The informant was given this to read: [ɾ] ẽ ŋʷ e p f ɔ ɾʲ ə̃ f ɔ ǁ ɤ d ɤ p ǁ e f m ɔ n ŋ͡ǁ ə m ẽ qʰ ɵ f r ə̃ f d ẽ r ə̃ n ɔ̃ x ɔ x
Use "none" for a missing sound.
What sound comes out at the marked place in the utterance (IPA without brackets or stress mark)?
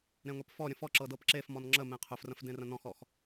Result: ɾ